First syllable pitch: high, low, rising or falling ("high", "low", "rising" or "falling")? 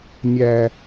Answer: high